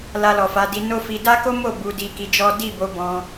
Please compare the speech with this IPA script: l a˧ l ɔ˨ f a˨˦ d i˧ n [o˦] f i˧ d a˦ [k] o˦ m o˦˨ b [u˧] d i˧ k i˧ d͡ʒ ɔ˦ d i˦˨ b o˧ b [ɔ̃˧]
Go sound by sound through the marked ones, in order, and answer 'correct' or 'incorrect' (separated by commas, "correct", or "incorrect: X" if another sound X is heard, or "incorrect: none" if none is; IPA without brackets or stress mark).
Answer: correct, correct, correct, correct